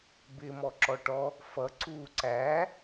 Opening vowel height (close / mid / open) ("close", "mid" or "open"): close